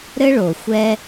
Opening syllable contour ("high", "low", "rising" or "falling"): high